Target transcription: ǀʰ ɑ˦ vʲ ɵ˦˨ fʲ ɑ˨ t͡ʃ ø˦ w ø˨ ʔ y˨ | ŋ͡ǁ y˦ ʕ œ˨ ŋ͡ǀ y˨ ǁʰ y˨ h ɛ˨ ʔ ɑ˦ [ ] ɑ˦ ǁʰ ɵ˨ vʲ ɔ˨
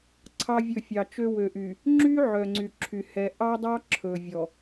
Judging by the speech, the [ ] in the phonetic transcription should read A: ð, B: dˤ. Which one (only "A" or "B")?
B